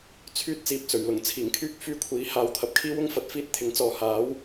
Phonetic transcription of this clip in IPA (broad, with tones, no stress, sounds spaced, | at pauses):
t͡sʰ yː˥ t̚ t͡s iː˧ p̚ t͡s ɵ˨˩ ɥ l ʊ˨˩ ŋ t͡sʰ iː˨˩ ŋ kʰ yː˥ k̚ f yː˥ kʷʰ iː˨˥ h aː˨˧ w t̪ʰ ɐ˨ p̚ kʰ iː˥ w ʊ˥ ŋ f ɐ˨ t̚ f iː˥ t̚ t̪ʰ ɪ˨˥ ŋ t͡s ɔː˨ h aː˨˥ w